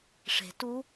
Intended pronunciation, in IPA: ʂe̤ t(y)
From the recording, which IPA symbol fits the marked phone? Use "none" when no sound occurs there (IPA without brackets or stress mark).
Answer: u